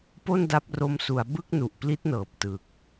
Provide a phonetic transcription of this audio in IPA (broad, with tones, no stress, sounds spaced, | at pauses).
p o˥˩ n d a˦˥ p̚ r o˦˥ m s u˩˦ a̯ b ɯ˥˩ k̚ n u˨˩ ʔ p l i˦˥ t̚ n ɤː˨˩ p̚ t ɯ˨˩ k̚